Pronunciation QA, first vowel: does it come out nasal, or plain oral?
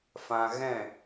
nasal